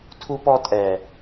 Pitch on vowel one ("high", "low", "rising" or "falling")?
high